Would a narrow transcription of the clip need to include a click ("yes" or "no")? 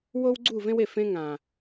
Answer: yes